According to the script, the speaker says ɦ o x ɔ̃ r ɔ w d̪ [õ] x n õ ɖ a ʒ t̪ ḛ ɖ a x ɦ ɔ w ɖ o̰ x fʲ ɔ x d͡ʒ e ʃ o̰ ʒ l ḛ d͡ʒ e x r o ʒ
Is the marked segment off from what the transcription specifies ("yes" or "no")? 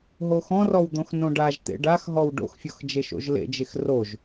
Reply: no